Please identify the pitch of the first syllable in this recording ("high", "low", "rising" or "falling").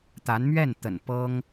rising